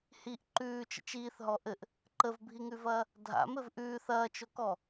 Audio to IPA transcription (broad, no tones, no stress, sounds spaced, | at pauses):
h i ʔ ǃ ʉː t͡ʃ ə̰ t͡ʃ iː θ ɦ ɔ ʔ ɘ ʔ | ǃ ə v bʱ i ŋ ʉ v ɐː | dʱ a̰ m ɘ v ʔ ʉː θ ɐː t͡ʃ o k ɔ